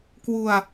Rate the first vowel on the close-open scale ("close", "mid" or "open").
close